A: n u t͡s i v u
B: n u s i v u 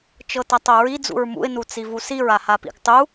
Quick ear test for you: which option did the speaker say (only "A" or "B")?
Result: A